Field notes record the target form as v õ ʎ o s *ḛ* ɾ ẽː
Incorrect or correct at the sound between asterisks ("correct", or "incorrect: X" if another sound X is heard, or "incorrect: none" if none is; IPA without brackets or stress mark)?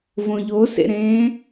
correct